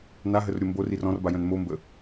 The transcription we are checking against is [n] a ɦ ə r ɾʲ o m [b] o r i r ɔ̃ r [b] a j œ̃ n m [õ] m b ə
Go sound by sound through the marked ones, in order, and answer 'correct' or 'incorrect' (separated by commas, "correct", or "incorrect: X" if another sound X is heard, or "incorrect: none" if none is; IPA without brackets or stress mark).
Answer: correct, correct, correct, incorrect: o